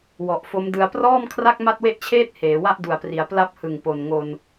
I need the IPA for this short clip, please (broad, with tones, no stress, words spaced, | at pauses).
wɔ˨˩ʔfo˦˥mdɯ˧a̯ prɔː˥˩mkʰra˥˩k̚ ma˥˩t̚we˥˩ʔt͡ɕʰeː˥˩t̚ heː˩˦wa˥˩ʔdu˨˩a̯pri˩˦a̯ pla˥˩p̚hɯ˨˩ŋ po˨˩nŋo˧n